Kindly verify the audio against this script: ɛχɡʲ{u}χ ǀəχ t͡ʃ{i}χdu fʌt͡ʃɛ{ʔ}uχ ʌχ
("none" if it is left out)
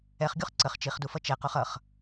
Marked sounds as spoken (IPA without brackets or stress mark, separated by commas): u, i, q